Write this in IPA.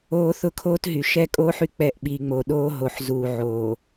oː˦θʊ˦kʰoː˦tɦy˨ ʃɛ˦kʼoː˦ħy˨ k͡pɛ˦˨ʔɓiː˨ŋ͡moː˨ ɗoː˦ɦo˨ħzuː˨ ʕoː˨

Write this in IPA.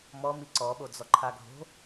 mɔmi ǀɔɓod͡zɔ ǃʰaɡʱo̤

